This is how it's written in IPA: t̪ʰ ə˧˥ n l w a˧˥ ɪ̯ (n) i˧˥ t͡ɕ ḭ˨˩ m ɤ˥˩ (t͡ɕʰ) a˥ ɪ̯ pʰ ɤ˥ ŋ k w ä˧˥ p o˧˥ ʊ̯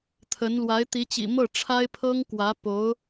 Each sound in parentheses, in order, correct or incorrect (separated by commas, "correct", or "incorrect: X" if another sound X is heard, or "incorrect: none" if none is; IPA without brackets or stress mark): incorrect: t̪, incorrect: ʈ͡ʂʰ